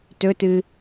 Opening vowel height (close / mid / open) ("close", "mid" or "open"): mid